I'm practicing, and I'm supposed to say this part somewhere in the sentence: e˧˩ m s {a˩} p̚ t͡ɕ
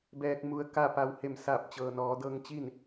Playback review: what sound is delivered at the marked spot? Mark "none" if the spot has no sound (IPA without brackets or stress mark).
a˧˩